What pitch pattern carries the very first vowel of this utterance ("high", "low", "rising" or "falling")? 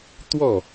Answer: falling